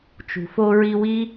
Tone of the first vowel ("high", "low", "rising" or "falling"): low